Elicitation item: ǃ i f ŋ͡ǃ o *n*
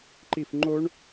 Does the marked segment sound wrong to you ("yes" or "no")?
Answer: yes